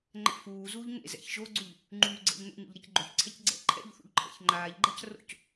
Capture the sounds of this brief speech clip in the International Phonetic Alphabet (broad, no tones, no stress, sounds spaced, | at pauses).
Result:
ŋ͡ǃ ɛ̰ f uː z uː ʎ ŋ ḛ z ɛ̰ ç ʒ o ɡ͡ǀ u ʎ | ŋ͡ǃ yː ɡ͡ǀ ɛ̰ ʎ n ṵ ɲ ṵ ʎ ɾ e c ɡ͡ǃ o ç ǀʰ ɛ c ɡ͡ǀ ɛ̰ ǃʰ ɛ̰ ʎ θ ṵ ʎ ǃʰ ɛ̰ ç ŋ͡ǃ aː ʎ ɡ͡ǃ a c r o̰ c